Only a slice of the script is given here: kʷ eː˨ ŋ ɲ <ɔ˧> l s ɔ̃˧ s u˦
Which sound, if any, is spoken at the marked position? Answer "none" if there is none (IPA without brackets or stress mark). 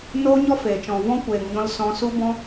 ɔ̃˧